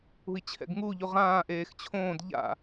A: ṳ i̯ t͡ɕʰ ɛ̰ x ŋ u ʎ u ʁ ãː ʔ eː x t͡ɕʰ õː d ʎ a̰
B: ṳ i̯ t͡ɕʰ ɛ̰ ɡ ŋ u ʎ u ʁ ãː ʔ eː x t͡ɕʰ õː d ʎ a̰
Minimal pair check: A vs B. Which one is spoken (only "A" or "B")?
B